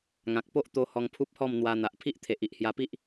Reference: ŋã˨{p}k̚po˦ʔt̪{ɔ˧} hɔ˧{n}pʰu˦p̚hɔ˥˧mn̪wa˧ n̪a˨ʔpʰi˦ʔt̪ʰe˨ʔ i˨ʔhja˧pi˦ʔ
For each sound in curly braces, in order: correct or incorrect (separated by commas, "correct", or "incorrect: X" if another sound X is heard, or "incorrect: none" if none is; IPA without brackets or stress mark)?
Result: incorrect: none, incorrect: o˧, incorrect: ŋ